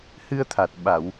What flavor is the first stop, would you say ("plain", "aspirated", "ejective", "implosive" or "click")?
aspirated